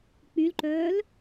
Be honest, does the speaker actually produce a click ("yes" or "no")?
yes